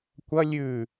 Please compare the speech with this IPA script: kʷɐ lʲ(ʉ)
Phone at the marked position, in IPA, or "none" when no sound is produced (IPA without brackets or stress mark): ʉ